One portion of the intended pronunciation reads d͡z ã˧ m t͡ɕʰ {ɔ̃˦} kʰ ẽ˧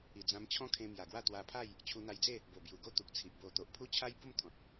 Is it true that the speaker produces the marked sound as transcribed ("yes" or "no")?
yes